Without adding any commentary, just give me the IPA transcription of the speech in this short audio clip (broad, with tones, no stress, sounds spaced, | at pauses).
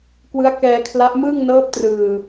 k w ɯ˦˥ a̯ k ɛː˧ kʰ l a˦˥ ʔ m ɯː˥˩ ŋ n ɤː˦˥ p̚ t r ɯː˨˩